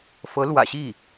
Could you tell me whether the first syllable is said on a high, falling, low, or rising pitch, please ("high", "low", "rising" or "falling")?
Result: rising